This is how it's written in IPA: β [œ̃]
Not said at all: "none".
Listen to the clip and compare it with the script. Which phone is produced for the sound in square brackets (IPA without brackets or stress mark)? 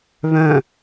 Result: œ̃